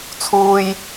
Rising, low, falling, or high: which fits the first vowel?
high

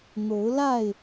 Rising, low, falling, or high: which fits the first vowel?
rising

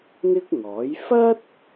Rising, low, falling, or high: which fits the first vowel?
high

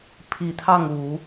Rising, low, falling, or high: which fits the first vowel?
low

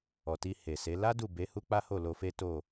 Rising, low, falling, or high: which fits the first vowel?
low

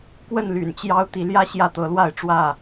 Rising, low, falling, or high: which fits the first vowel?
falling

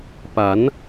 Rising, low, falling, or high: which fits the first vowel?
rising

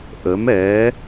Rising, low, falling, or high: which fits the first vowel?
rising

